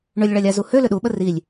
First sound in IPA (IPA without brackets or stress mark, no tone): ɳ